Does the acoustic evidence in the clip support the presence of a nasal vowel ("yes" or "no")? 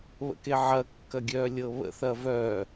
no